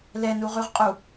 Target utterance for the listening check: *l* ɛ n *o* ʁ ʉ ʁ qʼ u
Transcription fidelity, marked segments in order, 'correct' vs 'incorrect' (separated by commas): correct, incorrect